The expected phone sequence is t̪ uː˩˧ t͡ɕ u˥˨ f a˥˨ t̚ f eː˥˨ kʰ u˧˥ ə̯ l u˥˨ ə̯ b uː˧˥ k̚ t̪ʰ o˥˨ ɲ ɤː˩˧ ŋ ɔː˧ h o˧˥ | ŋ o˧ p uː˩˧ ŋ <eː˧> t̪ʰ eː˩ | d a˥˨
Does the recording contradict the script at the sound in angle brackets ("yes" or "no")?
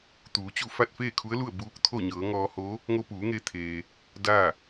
no